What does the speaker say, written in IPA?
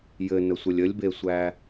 j ɘ n ə sʷ ə lʲ ə lʲ b e sʷ æ

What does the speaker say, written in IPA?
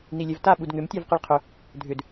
n i lʲ ɛ v t a ɓ u d ŋ ʏ m tʲ a v q i ɭ qʰ ʏ | dʱ ʏ d

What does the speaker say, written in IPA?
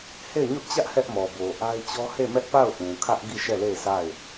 h e˦˨ ɪ̯ ɲ ʊ˦ ʔ t͡ɕ ä˦ ʔ h ɛ˦ ʔ m ɔ˨ b o˨ ʔ a˦ ɪ̯ t͡ɕ ɔ˦ h e˦˨ m ɛ˦ ʔ p a˦˨ ʊ̯ ʔ ũ˨ kʰ ä˦ ʔ ɡ i˦˨ ʃ ɛ˦˨ l e˦˨ ɪ̯ sʰ a˦˨ ɪ̯

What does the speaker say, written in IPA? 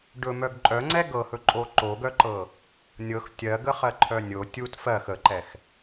ɖ ɵ m œ ɡ ǃʼ œ ŋ͡ǀ ɛ ɡ ɤ h ɵ ǃʼ o ǃ o ɡ œ ǃ ɤ | nʲ ɤ x tʲ ɜ ɡ ə χ ɜ ǃʰ œ nʲ o tʲ u t f ɜ x ə ǃ ɛ x

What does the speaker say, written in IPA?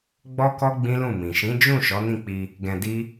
ɡ͡b ɔ˦ k ɔ˦ ɡ͡b ĩ˦ l ũ˦˨ m ĩ˨ ʃ ĩ˨˦ d͡ʒ ũ˦˨ ʃ ɔ˨˦ n ĩ˦˨ k͡p i˧ | ɡ ɛ̃˧ d i˦

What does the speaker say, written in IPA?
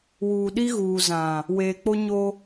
w uː˨ ɗ i˦ ɣ uː˨ z ã˨ | w eː˨ k͡p o˦ ɲ o˦

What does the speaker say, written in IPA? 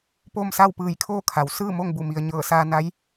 p o˥˨ m s a˥˨ w p ɯː˧˩ j kʰ oː˥˨ kʰ a˩˧ w s ɯː˥˨ m o˥˨ ŋ b u˧˩ m i˩ ə̯ ɲ ɤː˧˩ s aː˧ n a˧˥ j

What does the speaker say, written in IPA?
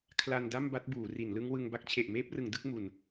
kʰ l a˧ n d a˥˩ m b a˦˥ t̚ b uː˩˦ r i˩˦ n l ɯ˦˥ ŋ w ɯ˧ ŋ b a˦˥ k̚ t͡ɕʰ e˨˩ ʔ m eː˦˥ p̚ r ɯ˩˦ ŋ d ɯ˦˥ k̚ m u˨˩ n

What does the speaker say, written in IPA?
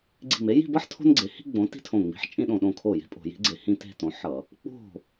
ɡ͡ǀ i̤˧˩ m e˨˥ j i̤˥˧ b ʌ˥ ħ tʰ o̤˥ n ɡ͡ǀ e˨˥ h i̤˥ ɡ͡b õ˨˥ t i̤˥ tʰ õ˧˩ ŋ͡m i̤˨˥ ħ t͡ʃʼ ĩ˥˧ ɗ õ˧˩ ɗ õ˥˩ kʰ o˥˩ j e̤˥ pʼ o̤˧˩˧ j i̤˨˥ ɡ͡ǀ e˧˩˧ h ĩ˥˧ t e̤˥˧ t õ˨˥ ħ ʌ˧˩˧ | k͡p o̤˥˩

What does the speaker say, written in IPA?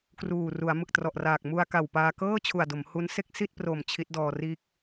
k r uː˨˩ r u˩˦ a̯ m ɯ˨˩ k̚ t r ɔ˨˩ ʔ r aː˨˩ k̚ m u˧ a̯ k a˨˩ w p aː˧ k ɤː˥˩ t͡ɕʰ u˨˩ a̯ d o˩˦ m h u˦˥ n s e˥˩ k̚ s i˥˩ t̚ p r o˨˩ m t͡ɕʰ i˦˥ t̚ d ɔː˧ r iː˥˩ k̚

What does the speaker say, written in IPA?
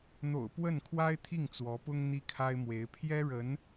n̪ o̰˨˩ ʊ̯ p w ə˥˩ n kʰ w a˥ ɪ̯ t̪ʰ i˥˩ ŋ t͡s w ɔ˧˥ p ʊ˥ ŋ n̪ i˥ kʰ a˥ ɪ̯ m w e˧˥ ɪ̯ pʰ j ɛ˥ ɻ ə˧˥ n

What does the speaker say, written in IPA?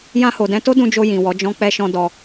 j ã˧ h o˨ d ɛ̃˧ t o˦ d ũ˧ d͡ʒ o˧ j ĩ˨ w ɔ˨˦ d͡ʒ ɔ̃˦ k͡p ɛ˧ ʃ ɔ̃˧ d ɔ˧

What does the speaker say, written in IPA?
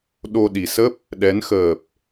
ɗ o˧ ɗ i˨˩ s ə˦˥ p̚ | ɗ ɛ˨˦ n x əː˨˩ p̚

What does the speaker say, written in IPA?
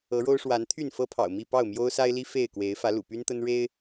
ɤ˨˦ ɻ o˦ ʊ̯ ʂ w a˨˦ n t̪ʰ y˥˨ n f ɤ˦ pʰ ɑ̰˨˩ ʊ̯ m i˥˨ p ɑ˥˨ ʊ̯ m j o˦ ʊ̯ s a˦ ɪ̯ l i˦ f e˥˨ ɪ̯ k w e˨˦ ɪ̯ f ä˨˦ l ṵ˨˩ p y˦ n t̪ ə˦ n ɻ e˦ ɪ̯

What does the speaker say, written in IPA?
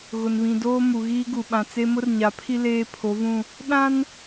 ɣ ʊ˨ n β ĩ˨ d oː˦ m u˨ ɣ iː˦ ɡ u˨ ɓ ã˨ t͡s e˦ m ʊ˦ r ɲ a˨ pʰ i˦ l eː˦ pʰ o˨˦ v ũ˦˨ | ɗ ã˦ n

